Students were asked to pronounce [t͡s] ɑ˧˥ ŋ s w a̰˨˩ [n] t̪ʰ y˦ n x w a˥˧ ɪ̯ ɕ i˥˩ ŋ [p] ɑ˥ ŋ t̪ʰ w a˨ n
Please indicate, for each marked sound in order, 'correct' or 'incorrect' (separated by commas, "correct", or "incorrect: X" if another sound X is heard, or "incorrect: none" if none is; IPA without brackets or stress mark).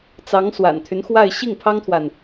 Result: correct, correct, incorrect: pʰ